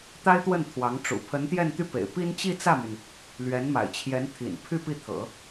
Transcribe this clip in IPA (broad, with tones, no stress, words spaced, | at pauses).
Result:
t̪a˥ɪ̯t̪wə˥˩n t̪ʰwɑ˧˥ŋʈ͡ʂṵ˨˩ pʰə˧˥nt̪jɛ˥˧nt̪y˥˩pḛ˨˩ɪ̯ pi˥n t͡ɕi˥˧t͡sä˥˩my˩n | lɥɛ˧˥nma̰˨˩ɪ̯t͡ɕʰjɛ˧˥nt̪ʰḭ˨˩n pʰy˥˧ pi˥˩t̪ʰɤ̰˨˩˦